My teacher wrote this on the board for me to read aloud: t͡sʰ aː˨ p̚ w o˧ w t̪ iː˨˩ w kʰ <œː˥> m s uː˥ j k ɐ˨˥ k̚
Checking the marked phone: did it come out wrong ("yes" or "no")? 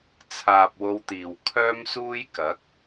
no